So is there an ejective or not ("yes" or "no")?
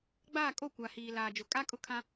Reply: yes